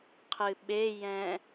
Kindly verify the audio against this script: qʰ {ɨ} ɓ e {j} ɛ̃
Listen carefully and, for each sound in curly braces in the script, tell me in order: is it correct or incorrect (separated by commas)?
correct, correct